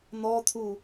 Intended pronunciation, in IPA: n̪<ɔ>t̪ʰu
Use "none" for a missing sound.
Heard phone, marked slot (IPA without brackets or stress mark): ɔ